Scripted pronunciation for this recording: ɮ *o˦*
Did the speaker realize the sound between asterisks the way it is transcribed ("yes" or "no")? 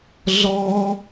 no